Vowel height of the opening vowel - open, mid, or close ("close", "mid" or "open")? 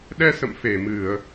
mid